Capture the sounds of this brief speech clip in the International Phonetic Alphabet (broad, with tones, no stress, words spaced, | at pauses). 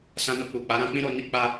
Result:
sã˧no˧k͡pu˨ k͡pa˨˦ɾã˦k͡pĩ˦ɾo˧ ni˦ k͡pa˧